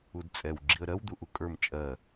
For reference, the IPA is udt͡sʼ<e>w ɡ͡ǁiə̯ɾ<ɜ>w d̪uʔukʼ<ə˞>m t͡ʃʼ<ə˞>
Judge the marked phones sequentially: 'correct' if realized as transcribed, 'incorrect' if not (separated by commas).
incorrect, correct, correct, incorrect